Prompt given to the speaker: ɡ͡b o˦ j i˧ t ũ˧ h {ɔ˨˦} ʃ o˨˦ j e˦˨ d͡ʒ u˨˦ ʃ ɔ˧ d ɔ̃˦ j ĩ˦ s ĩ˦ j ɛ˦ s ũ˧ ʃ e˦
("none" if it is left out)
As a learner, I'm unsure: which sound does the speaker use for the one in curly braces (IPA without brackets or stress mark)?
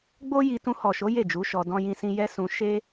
ɔ˨